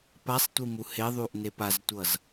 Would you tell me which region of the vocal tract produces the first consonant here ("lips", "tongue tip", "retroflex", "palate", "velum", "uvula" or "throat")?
lips